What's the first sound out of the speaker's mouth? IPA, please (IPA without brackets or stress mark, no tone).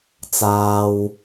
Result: t͡s